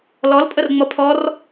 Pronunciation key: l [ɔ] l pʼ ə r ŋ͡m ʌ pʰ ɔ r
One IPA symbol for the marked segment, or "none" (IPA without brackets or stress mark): ɔ